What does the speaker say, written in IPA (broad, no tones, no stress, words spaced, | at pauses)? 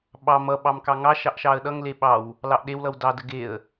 ɓɑ mʌ ɓɑmkɑŋɑ ʃɑʔʃɑə̯ɗʌŋle ɓɑw | lɑʔɗewlʌw dɑdə ɡeə̯